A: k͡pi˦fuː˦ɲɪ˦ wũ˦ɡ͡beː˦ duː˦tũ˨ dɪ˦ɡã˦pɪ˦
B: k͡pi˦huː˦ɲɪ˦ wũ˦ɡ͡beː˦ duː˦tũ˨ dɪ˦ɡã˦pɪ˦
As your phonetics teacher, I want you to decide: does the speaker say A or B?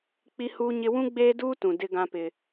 B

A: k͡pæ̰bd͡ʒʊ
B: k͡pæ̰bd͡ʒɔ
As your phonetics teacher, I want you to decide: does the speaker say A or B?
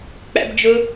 A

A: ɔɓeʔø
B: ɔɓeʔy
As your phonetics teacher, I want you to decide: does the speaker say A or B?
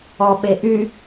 B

